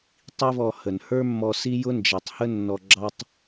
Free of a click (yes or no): no